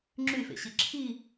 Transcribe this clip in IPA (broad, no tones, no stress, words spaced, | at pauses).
ŋ͡ǁyfḛɕi ǁʰi